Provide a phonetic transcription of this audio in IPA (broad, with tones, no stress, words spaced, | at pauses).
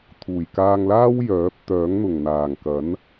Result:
t̪ʰuː˨˩jkaː˧ŋlaː˥w jœː˨˥p̚ t̪œː˨˥ŋn̪ʊ˨˩ŋ n̪aː˨˩ŋkɐ˨˥n